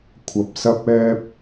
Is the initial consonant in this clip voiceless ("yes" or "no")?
yes